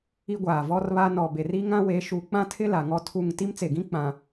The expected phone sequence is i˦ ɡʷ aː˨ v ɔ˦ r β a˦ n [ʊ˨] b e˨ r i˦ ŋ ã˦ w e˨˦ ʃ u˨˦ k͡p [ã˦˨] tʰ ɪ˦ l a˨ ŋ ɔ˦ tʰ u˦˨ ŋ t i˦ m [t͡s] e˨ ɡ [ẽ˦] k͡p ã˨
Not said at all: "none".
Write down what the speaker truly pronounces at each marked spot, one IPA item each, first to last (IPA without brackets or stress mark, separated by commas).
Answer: ɔ˨, ã˦, t͡s, ĩ˦